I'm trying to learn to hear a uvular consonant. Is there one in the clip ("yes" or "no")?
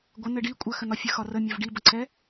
no